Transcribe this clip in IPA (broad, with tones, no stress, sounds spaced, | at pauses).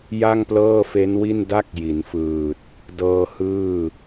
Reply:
j a˥˩ ŋ p l ɤː˥˩ f e˦˥ n w i˥˩ n d a˥˩ k̚ j i˩˦ n f ɯː˨˩ t̚ | d ɤː˧ h ɯː˥˩